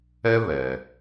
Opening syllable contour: high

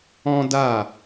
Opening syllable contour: high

